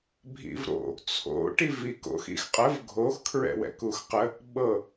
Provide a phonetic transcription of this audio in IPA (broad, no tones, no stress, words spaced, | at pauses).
bʱḭvɾo̰ | t͡sʰo̰ ʈiviko̰x ḭxqʼəv ɡʱox kʰɹɛ̰wɛ̰kuxqə | ɓɤ